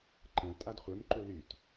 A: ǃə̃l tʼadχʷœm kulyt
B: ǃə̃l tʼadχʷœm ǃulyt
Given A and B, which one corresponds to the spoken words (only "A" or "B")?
B